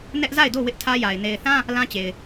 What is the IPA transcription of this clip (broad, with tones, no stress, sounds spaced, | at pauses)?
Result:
n ɛ˦ ʔ z a˦˨ ɪ̯ d o˦˨ w ɪ˦ ʔ tʰ ä˦ j a˨ ɪ̯ n e˨ ɪ̯ θ ã˦ | l ã˦ t͡ɕ e˨ ɪ̯